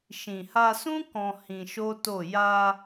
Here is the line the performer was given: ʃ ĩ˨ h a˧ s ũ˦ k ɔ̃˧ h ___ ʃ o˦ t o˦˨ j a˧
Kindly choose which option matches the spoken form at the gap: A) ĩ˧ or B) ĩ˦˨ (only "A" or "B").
A